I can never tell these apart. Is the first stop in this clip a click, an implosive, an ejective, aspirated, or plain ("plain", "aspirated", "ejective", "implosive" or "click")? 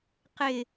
plain